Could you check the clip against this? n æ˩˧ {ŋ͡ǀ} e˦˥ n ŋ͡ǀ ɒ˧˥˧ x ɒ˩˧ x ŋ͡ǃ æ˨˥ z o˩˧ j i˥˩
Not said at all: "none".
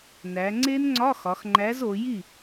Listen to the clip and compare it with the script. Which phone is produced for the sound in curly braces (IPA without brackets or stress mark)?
ŋ͡ǀ